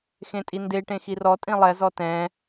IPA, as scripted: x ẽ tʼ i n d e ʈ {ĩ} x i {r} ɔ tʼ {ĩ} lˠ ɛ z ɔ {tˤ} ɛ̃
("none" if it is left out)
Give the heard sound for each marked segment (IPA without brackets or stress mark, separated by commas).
ẽ, r, ĩ, t